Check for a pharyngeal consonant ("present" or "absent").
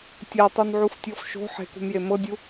present